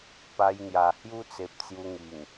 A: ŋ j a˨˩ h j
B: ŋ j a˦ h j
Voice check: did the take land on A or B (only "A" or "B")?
A